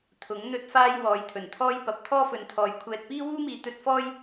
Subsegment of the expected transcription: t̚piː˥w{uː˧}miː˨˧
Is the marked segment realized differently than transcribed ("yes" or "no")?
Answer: yes